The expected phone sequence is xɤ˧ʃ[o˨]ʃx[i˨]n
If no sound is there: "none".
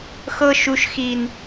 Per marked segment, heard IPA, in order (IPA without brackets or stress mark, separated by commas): u˨, i˨